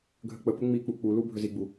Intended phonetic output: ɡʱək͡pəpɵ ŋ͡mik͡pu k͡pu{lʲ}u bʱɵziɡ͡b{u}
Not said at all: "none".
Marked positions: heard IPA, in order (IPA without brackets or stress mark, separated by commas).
l, u